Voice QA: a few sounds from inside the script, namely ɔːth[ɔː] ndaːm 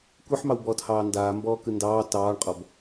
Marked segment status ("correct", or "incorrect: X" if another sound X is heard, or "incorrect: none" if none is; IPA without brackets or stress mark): incorrect: ɑː